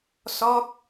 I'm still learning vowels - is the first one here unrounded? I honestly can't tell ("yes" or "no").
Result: no